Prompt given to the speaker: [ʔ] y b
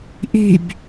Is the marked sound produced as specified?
yes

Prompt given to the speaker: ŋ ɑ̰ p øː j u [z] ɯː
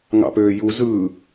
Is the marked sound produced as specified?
yes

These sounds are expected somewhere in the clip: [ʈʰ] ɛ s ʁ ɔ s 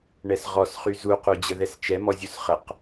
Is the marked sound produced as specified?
no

